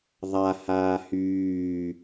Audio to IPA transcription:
ðˤa haːhyː

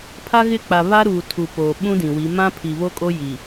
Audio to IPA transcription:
pʰa˦ɣɪ˦˨k͡pa˨ βa˦ɾuː˨ tʰu˨poː˨ ɓũ˦dĩ˨wi˨˦ mã˦ pʰi˨βo˦kʼo˦ ji˨

